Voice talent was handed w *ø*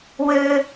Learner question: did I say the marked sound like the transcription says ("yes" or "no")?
yes